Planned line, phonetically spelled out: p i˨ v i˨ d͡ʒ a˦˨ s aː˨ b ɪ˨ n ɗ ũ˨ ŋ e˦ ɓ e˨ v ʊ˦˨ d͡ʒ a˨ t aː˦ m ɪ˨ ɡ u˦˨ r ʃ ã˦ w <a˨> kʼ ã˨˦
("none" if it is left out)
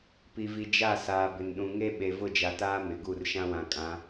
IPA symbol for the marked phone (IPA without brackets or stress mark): ã˨